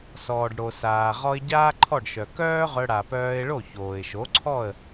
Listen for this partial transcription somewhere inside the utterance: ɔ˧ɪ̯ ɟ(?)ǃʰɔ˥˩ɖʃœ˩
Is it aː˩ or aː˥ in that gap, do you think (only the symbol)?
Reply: aː˥